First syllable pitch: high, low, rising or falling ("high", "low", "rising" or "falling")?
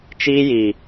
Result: high